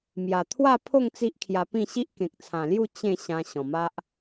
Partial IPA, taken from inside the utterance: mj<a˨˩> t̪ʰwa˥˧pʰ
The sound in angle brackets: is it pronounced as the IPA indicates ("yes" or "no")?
yes